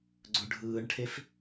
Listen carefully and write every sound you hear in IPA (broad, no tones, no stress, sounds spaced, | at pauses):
ɡ͡ǀ ɵ ɖʱ ɯː ɳ ʈʰ e f